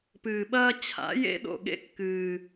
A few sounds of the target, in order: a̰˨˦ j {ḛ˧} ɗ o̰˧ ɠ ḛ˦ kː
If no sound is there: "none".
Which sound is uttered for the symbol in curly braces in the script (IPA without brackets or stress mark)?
ḛ˦